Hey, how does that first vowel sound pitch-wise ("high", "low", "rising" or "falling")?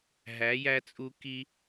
rising